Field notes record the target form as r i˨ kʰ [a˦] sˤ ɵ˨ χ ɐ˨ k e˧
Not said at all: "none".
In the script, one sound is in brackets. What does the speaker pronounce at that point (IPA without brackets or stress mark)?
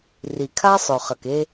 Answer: a˦